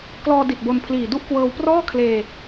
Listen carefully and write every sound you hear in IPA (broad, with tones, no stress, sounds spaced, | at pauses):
k l ɔː˧ d i˨˩ t̚ b o˧ n pʰ l iː˨˩ d u˥˩ ʔ k w ɤː˧ w p r ɔː˥˩ kʰ l eː˧